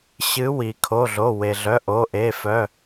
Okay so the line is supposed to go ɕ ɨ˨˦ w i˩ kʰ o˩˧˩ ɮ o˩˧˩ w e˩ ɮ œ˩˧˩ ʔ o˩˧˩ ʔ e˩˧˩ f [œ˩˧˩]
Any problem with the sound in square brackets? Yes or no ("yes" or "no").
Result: no